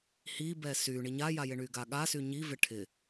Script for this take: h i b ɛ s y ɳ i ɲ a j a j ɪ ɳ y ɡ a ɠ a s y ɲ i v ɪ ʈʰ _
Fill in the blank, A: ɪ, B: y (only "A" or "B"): A